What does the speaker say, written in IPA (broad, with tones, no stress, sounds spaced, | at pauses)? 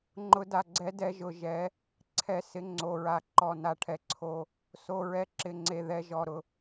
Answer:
ŋ͡ǃ ʊ˨˥ d a˩˧˩ ɡ͡ǀ ɛ˨˥ d ɛ˧ ʒ ʊ˧ ʒ ɛ˨˥ | ǀʰ ɛ˧˩ s ɪ˨˥ ŋ͡ǀ o˩˧˩ ɹ a˧˩ ǃ ɔ˧˩ n a˧ ʈʰ ɛ˨˥ ǀʰ o˧ | s o˩˧˩ ɹ ɛ˨˥ ǁ ɪ˧˩ ŋ͡ǀ e˧˩ ð ɛ˧ ʒ ɔ˩˧˩ ɾ ʊ˧